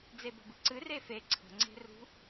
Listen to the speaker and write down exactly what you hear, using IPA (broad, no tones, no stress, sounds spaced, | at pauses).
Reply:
d͡z e b ə̤ b ɨ ǀ ɨ r e f e ǀʰ ə̤ ŋ͡ǀ e̤ r ṳ